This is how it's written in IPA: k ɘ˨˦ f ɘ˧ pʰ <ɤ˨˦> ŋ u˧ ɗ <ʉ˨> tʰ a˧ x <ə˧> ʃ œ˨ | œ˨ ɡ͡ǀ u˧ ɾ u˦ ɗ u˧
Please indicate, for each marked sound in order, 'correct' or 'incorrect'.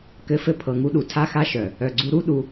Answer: incorrect, incorrect, incorrect

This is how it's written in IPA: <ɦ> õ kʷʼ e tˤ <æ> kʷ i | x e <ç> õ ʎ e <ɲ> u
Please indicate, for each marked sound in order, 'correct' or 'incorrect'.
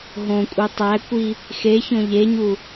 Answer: correct, correct, correct, correct

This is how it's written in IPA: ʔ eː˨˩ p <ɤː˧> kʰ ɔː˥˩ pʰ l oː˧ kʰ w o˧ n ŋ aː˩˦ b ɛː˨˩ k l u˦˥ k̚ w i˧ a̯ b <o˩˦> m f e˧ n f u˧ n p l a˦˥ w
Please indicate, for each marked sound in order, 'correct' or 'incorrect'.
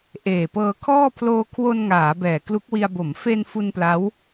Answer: correct, correct

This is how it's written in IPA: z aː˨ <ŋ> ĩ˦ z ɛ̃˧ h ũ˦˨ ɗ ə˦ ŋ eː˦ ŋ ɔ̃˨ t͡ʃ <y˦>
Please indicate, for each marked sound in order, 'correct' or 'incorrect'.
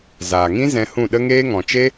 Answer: correct, incorrect

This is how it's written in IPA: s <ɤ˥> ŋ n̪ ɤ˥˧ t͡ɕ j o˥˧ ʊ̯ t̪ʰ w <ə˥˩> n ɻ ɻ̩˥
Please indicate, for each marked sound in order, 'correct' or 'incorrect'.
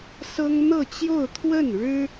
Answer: correct, correct

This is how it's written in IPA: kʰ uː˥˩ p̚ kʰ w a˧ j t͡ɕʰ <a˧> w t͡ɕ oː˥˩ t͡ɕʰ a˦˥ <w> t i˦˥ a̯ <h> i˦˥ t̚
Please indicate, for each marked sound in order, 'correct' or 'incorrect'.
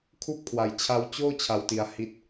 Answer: incorrect, correct, correct

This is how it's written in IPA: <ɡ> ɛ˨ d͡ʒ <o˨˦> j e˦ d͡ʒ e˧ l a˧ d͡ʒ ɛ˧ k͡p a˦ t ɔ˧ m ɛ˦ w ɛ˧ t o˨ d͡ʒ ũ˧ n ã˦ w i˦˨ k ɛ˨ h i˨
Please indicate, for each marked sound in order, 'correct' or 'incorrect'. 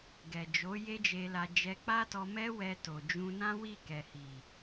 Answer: correct, correct

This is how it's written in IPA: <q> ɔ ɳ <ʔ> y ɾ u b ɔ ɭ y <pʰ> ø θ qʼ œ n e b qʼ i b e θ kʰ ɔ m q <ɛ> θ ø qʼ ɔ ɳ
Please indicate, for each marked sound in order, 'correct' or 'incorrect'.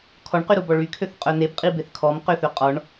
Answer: incorrect, incorrect, incorrect, incorrect

